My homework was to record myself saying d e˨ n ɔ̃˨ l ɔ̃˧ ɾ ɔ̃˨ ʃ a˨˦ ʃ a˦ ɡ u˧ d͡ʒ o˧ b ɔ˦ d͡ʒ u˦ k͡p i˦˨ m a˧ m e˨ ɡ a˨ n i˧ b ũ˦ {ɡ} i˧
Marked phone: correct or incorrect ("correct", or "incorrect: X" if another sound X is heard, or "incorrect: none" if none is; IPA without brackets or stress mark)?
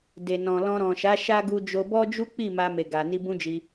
incorrect: d͡ʒ